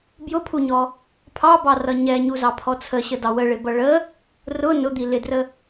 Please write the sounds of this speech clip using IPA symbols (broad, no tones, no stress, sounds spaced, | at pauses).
b j ʊ pʰ u ɲ ɔ | pʰ ɑ b ɑ r ʌ ɲ ɛ ɲ u z ɑ pʰ ɔ t͡sʰ ə ɕ ə d ɑ w ə ɭ ɪ b ʌ ɭ ə | r ʊ n ʊ d̪ i l ɪ d r ə